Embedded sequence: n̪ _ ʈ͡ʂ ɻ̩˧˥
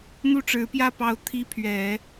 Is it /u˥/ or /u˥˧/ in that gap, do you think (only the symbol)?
u˥